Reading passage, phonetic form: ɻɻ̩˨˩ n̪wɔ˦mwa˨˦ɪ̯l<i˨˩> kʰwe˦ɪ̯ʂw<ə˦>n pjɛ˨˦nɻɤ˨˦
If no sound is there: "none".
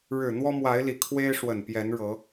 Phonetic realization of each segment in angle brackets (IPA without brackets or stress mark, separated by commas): i˨˩, ə˨˩